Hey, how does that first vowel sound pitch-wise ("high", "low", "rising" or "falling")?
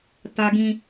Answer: high